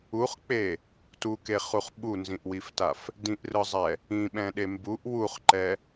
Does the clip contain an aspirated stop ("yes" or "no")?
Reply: no